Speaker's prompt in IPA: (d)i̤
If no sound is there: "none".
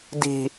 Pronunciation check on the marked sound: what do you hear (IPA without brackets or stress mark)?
d